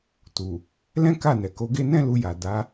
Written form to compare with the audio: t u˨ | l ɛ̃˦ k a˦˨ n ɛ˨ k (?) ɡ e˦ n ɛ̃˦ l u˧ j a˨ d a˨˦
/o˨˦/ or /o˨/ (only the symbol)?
o˨˦